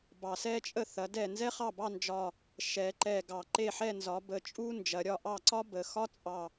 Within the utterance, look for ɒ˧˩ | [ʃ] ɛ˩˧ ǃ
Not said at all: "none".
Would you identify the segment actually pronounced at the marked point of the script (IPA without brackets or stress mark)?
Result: ʃ